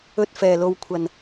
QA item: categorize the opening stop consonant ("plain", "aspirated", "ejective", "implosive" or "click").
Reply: plain